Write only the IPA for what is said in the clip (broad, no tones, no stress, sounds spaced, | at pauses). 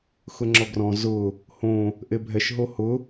x ʊ ŋ͡ǁ ɔ ɡ r ɔ̃ z ʊ | h õ | ʔ e bʱ ɛ ʃ ɦ o h ʊ